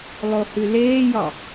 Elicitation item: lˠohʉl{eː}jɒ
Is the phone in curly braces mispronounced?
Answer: no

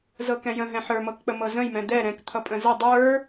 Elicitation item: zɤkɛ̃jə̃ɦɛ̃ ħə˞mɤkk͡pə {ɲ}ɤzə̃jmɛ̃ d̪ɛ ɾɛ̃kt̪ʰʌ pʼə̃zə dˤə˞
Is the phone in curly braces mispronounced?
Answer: yes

